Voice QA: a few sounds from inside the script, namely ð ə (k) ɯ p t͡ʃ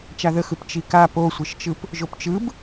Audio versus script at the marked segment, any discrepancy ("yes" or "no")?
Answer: yes